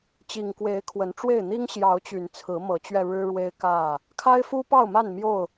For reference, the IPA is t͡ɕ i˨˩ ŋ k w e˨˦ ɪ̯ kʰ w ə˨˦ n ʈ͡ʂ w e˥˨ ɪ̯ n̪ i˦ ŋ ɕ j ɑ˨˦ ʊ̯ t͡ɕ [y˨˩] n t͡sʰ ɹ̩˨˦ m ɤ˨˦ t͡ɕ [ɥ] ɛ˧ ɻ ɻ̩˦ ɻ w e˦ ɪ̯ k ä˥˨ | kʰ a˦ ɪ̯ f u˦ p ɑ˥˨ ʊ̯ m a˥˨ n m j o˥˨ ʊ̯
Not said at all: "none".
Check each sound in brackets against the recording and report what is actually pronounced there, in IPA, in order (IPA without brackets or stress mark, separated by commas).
y˨˩, ɥ